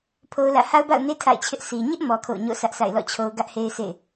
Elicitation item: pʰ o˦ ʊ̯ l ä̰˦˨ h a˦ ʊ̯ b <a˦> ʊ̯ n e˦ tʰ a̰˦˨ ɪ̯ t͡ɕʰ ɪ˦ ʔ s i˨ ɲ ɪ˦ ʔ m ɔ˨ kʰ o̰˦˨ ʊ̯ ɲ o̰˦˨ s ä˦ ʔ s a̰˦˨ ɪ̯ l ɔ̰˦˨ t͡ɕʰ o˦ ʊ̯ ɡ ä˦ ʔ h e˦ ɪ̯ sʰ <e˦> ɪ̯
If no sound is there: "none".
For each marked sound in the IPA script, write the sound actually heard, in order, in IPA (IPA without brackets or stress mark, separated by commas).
a̰˦˨, ḛ˦˨